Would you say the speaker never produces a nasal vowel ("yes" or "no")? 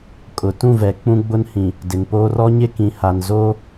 no